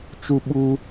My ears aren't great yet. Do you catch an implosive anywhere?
yes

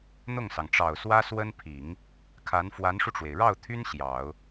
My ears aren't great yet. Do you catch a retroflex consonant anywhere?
yes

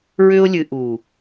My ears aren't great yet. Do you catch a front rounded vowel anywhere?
yes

